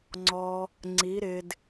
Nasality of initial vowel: oral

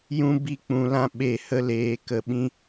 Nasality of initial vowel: nasal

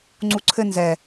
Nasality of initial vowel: oral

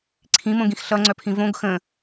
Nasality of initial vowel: nasal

